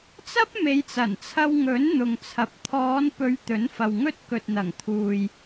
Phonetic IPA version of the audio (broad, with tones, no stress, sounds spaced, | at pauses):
t͡s ɐ˥ p̚ m e˨˧ j t͡s ɐ˨˩ n t͡sʰ ɐ˧ w ŋ ɵ˨˥ n n̪ ʊ˨ ŋ t͡sʰ ɐ˨ p̚ t̪ʰ ɔː˨˧ n p ɵ˨˧ ɥ t̪ ɵ˨˥ n f ɐ˨ w ŋ ɵ˥ t̚ k ɵ˨ t̚ n̪ ɐ˨˩ ŋ t̪ʰ uː˨ j